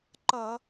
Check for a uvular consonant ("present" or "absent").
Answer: absent